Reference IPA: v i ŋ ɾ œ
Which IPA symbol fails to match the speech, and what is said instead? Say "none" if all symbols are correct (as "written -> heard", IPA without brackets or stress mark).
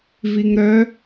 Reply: none